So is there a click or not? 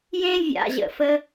no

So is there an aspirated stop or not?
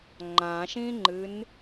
no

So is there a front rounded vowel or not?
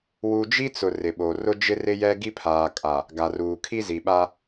no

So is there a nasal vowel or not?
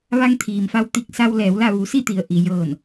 no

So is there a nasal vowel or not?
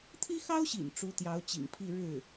no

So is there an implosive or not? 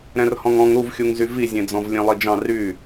no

